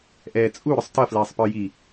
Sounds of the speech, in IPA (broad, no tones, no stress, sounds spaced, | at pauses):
ʔ ɛː t͡sʼ u ɾ ʊ sˤ t ʌ f l ɛː sˤ p ə˞ j i